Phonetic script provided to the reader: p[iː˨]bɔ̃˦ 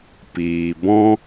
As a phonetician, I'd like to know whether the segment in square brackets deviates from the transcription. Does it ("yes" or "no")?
no